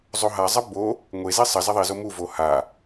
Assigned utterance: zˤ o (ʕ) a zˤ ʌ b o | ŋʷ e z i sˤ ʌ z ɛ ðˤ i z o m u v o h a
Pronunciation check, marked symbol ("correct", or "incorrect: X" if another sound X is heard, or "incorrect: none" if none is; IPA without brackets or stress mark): incorrect: ɦ